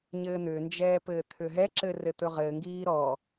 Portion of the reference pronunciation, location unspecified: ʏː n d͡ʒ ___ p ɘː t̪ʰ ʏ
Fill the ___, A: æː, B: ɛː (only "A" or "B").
B